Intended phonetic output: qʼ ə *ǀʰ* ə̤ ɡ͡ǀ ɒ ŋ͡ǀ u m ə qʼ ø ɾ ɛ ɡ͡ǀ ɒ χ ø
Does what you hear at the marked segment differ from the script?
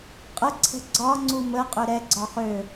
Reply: no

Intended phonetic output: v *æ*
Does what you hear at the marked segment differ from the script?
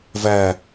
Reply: no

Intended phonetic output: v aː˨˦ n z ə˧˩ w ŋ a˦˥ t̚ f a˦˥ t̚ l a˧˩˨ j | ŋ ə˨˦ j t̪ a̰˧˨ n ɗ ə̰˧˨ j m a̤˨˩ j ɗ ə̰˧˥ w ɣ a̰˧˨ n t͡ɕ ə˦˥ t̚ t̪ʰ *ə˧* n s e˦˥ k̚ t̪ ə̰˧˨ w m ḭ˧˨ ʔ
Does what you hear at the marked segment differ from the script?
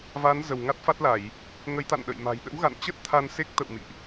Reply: yes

